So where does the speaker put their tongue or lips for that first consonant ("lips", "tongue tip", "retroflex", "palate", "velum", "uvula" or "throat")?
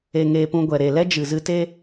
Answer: velum